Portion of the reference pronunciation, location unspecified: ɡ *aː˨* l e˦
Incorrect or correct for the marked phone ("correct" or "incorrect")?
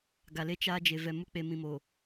incorrect